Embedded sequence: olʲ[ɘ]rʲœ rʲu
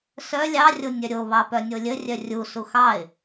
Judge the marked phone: correct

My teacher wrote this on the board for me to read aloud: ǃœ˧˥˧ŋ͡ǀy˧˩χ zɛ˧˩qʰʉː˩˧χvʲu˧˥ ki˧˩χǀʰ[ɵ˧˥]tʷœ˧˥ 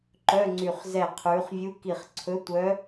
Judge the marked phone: correct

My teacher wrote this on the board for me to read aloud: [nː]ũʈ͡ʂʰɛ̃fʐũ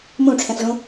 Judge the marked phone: incorrect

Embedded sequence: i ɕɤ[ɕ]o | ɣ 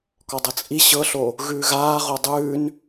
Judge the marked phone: incorrect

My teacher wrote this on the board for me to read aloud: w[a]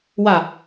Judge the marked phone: correct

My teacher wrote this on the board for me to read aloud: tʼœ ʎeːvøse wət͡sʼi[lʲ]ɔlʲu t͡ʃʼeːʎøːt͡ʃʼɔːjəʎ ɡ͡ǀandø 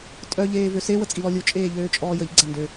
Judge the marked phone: incorrect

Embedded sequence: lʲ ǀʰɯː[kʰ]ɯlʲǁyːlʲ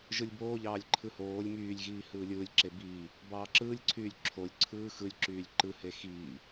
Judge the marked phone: incorrect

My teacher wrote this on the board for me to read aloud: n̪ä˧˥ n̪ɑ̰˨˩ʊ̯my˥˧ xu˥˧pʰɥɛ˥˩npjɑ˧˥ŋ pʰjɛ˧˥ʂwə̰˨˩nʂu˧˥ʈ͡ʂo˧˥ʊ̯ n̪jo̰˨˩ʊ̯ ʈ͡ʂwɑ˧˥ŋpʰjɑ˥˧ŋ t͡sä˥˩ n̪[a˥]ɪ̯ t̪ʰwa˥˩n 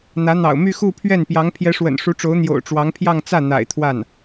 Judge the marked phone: incorrect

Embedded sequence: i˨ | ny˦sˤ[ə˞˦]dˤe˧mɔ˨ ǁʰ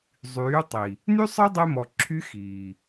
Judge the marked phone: correct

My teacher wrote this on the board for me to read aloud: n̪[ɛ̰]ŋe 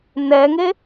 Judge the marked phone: incorrect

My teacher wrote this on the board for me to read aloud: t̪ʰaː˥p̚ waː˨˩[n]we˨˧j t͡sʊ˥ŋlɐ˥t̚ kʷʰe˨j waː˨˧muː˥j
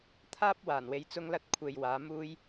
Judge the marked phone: correct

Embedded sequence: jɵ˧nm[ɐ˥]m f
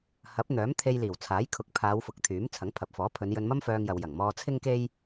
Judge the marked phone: correct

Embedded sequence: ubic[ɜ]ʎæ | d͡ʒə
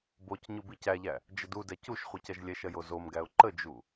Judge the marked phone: incorrect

